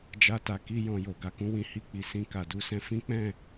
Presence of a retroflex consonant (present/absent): absent